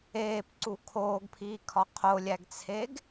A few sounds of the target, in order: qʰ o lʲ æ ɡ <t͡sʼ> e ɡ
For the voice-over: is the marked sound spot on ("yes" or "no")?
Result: no